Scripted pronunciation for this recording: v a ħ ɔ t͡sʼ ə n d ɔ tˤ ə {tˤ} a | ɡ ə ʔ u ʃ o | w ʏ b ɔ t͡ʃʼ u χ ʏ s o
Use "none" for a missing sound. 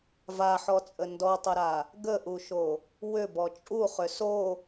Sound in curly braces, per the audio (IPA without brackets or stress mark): ɾ